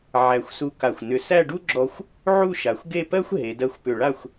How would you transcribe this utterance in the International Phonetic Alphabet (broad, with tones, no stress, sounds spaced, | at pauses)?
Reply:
ʕ æ˧˩ xʷ s u˧ k a˧˩ xʷ n ʏ˧ s æ˥˧ ɖ u˥ ɡ͡ǁ ɔ˧ xʷ | ʕ u˥˧ ʃ a˩˧ xʷ ɡ e˥˧ p ɜ˥ xʷ ɦ e˩˧ d ɜ˧ xʷ p ʏ˧˩ ɭ a˥˧ xʷ